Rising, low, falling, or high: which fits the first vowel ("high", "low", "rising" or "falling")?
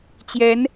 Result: rising